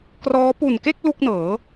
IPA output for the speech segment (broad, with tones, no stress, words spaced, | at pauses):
krɔː˦˥ pu˨˩nke˥˩k̚ lu˥˩k̚nɤː˩˦